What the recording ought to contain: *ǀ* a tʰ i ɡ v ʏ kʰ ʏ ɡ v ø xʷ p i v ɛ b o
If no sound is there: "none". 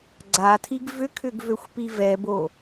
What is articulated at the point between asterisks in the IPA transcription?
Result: ɡ͡ǀ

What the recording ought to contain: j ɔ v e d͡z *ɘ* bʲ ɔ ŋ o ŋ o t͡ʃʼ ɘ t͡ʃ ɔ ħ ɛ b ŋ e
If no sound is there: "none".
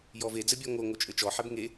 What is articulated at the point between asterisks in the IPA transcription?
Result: ɘ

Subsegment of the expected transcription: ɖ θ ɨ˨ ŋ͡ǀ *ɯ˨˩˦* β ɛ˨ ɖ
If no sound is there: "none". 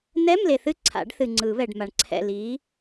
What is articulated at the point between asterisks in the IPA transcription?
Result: ɯ˨˩˦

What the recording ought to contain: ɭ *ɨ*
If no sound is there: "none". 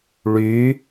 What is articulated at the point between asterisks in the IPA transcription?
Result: y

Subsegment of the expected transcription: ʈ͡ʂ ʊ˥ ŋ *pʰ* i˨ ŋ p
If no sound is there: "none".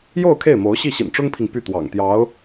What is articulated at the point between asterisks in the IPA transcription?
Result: pʰ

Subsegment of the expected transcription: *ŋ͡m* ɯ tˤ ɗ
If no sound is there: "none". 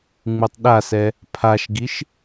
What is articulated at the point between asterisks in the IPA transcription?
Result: ŋ͡m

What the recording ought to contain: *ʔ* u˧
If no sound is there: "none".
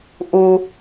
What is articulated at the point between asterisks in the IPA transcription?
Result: ʔ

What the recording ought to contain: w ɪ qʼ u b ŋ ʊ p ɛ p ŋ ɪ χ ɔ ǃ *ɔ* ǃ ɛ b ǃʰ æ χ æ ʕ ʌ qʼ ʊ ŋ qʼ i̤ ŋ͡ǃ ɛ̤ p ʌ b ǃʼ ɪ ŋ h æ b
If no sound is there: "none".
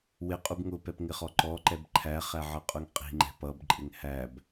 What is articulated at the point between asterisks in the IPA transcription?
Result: ɔ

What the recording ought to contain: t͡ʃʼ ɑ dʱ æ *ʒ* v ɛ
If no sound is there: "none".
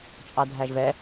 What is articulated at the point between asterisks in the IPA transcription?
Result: ʒ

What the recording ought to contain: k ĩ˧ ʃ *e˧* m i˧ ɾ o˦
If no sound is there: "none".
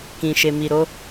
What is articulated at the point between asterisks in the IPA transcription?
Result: e˧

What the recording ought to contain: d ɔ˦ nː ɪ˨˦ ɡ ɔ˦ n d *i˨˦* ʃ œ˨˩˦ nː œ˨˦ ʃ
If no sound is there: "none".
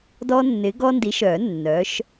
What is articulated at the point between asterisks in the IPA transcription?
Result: i˨˦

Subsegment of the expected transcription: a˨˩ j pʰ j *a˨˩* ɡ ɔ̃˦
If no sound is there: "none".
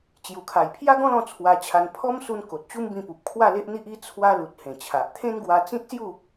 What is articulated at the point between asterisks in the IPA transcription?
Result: a˦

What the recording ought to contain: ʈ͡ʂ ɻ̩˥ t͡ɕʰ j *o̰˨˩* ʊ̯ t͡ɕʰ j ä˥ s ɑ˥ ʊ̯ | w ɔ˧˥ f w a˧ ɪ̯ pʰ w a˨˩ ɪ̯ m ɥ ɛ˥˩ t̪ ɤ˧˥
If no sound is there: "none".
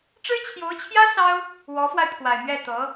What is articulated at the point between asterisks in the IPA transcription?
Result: o˧˥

